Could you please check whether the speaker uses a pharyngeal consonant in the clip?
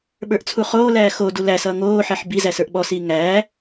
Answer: yes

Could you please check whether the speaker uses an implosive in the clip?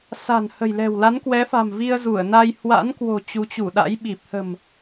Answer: yes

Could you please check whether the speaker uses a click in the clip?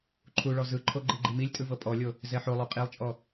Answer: yes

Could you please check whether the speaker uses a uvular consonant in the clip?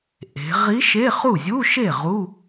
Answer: yes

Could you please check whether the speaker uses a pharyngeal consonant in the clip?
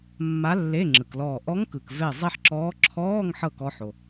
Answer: yes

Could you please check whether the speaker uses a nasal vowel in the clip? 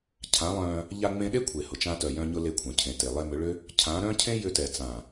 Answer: yes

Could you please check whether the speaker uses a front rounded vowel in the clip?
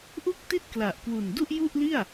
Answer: no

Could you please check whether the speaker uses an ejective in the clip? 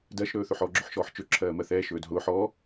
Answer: no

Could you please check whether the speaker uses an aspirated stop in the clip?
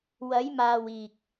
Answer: no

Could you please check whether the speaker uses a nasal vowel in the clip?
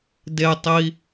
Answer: no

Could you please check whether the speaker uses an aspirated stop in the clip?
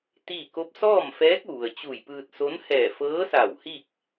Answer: no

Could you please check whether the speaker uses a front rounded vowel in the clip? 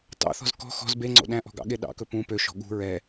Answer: yes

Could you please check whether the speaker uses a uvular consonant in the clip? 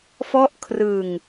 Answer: no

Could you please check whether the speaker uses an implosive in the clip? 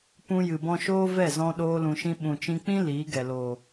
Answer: yes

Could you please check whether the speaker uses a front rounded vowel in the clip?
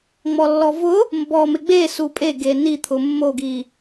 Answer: no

